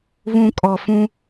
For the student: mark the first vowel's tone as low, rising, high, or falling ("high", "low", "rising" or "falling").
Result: low